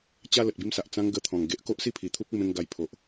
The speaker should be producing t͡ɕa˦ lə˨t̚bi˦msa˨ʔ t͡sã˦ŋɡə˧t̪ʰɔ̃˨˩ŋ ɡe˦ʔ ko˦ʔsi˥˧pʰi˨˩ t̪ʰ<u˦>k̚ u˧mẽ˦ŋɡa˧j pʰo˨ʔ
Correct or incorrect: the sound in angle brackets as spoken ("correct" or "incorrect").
correct